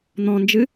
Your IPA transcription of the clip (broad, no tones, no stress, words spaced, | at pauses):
n̪ɔ̃nd͡ʒɨ